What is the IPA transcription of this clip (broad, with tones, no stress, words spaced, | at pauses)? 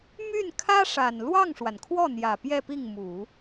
my˥˩nkʰä˥ʂa˨˩n lwɑ˥˩ŋʂwa˩nkʰwɔ˥˩n̪jä˨˩ pjɛ˥˧pi˥˩ŋmu˨˩˦